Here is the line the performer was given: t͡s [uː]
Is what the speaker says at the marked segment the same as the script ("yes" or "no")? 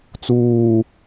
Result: yes